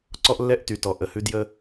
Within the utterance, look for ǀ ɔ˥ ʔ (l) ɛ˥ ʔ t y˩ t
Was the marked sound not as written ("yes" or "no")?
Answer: yes